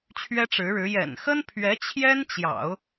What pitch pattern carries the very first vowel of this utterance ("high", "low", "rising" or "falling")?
high